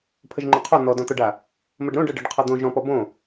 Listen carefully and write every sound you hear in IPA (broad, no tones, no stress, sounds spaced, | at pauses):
pʰ ə ʒ ŋ͡ǃ o qʰ ɔ n̪ ɔ d ɔ̃ t̪ ɔ ɖ a | m ə ɖ ɾ õ ɖ ɤ ɖ ɤ ɖ qʰ ɔ d̪ õ ʒ ɔ̃ p ɔ b õ